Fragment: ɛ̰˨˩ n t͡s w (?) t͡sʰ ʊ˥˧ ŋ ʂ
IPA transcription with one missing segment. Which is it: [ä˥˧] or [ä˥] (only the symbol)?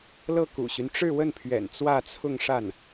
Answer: ä˥˧